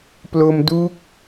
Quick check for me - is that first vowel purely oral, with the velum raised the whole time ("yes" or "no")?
yes